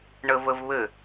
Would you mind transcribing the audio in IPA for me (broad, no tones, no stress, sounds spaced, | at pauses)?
ɳ ə v ə v β ɘ